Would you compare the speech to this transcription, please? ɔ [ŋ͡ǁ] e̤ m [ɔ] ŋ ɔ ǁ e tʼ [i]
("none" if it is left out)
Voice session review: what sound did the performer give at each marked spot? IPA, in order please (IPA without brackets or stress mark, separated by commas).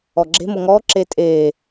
ɡ͡ǁ, o, e